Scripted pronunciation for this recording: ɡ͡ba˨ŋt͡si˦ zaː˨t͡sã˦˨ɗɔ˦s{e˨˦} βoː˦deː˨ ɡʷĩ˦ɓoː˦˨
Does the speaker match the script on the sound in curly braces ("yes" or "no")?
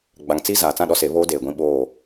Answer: yes